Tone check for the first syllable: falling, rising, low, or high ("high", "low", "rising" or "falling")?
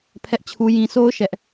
high